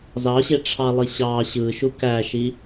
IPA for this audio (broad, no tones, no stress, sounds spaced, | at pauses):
z ɑ ɕ e ʈ͡ʂʰ ɑ lˠ i ɕ ɑ ɕ ɯ ʃ u k æ ʃ i